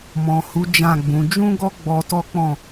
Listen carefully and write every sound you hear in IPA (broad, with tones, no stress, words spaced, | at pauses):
mɔ̃˨hu˨˦ d͡ʒã˦˨ɡ͡bũ˨˦ d͡ʒũ˦ɡɔ˦ ɡ͡bɔ˧tɔ˦k͡pɔ̃˦˨